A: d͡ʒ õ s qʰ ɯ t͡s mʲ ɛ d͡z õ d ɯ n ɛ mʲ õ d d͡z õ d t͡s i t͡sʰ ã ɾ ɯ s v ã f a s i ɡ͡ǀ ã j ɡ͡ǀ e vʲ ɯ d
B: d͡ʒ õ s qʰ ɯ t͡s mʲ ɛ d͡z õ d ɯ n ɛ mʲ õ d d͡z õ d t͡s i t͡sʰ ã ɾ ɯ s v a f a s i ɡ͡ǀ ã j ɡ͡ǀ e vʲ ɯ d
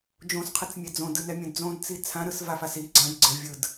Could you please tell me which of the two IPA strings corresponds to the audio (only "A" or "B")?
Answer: B